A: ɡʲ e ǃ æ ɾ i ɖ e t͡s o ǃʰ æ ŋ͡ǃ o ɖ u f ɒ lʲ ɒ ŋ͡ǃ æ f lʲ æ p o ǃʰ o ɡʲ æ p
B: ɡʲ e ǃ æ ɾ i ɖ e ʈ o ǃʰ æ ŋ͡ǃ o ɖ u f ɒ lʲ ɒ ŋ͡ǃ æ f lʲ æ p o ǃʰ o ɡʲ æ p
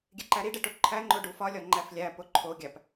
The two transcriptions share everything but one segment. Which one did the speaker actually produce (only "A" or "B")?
B